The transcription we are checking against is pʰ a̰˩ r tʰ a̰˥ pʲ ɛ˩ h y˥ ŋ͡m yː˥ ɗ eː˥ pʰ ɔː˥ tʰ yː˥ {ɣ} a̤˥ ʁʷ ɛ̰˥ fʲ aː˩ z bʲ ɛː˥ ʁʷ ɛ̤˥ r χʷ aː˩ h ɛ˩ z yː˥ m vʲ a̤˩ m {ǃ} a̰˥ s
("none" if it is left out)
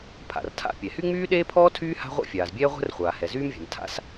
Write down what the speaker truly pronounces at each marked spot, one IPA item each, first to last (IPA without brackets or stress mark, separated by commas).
h, tʰ